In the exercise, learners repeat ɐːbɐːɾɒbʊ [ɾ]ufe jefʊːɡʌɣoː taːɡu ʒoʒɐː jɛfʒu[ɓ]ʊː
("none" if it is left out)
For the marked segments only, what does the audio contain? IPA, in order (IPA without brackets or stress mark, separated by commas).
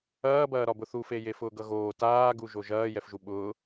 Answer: θ, ɓ